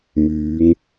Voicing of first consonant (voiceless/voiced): voiced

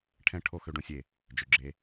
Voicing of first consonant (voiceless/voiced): voiceless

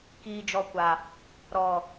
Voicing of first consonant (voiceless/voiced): voiceless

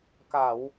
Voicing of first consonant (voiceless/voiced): voiceless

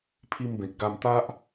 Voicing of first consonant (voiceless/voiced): voiceless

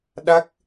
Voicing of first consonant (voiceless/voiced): voiced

